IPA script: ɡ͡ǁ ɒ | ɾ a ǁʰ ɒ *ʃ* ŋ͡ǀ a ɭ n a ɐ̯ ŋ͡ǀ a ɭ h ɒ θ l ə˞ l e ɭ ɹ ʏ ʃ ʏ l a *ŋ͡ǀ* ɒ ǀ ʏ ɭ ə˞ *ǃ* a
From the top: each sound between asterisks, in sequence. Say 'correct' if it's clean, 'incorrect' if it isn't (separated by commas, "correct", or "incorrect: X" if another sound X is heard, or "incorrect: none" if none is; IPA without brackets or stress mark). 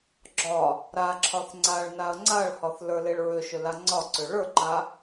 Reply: incorrect: θ, correct, correct